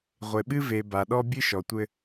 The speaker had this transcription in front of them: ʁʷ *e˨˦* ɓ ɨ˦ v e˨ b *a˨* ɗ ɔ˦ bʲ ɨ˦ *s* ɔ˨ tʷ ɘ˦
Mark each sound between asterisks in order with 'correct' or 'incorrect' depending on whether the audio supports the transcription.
incorrect, correct, incorrect

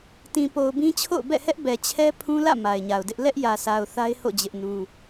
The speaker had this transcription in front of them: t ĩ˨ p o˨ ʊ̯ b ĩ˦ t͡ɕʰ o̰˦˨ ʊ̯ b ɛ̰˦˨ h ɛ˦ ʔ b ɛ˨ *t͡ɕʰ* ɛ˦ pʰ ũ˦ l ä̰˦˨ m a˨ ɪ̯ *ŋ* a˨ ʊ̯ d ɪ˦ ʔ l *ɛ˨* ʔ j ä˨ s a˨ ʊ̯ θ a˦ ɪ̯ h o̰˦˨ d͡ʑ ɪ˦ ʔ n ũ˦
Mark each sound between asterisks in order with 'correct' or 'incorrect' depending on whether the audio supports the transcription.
correct, incorrect, incorrect

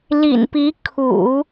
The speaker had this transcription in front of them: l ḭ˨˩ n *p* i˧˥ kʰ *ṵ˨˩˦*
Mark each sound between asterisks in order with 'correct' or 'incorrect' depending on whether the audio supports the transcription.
correct, correct

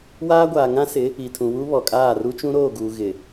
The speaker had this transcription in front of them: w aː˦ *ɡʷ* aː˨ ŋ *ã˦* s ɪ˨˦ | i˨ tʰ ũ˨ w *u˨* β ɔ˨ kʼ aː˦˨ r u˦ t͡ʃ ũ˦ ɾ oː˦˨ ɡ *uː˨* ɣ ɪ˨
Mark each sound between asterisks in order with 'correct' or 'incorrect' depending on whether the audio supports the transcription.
correct, correct, incorrect, correct

